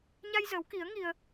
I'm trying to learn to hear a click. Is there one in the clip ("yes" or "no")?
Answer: no